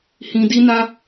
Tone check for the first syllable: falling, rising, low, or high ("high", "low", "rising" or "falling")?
low